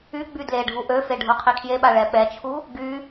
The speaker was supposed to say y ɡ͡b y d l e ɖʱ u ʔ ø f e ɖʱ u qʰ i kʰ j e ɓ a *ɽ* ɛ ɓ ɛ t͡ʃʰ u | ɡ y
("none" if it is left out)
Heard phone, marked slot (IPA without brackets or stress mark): ɭ